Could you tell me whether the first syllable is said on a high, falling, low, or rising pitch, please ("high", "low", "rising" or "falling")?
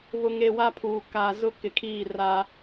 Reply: low